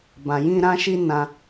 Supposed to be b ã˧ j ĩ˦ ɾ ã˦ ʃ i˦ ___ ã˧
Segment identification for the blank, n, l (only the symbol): n